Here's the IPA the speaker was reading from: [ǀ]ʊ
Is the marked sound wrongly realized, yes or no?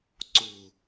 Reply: no